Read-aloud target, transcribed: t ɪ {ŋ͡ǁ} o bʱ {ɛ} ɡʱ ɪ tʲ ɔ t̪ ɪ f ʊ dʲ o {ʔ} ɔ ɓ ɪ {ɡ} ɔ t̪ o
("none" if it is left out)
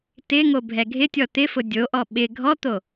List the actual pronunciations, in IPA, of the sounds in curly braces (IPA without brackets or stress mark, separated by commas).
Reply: ŋ, ɛ, ʔ, ɡʱ